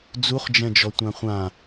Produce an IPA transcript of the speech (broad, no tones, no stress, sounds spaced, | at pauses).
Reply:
d͡z u χ d͡ʒ ɛ̃ d͡ʒ ɔ tʷ ã χʷ ã